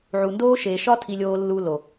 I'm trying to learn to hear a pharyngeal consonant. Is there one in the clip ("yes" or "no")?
yes